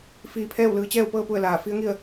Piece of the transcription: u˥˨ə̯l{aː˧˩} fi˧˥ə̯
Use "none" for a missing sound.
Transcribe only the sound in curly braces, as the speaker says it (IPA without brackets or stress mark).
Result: aː˧˩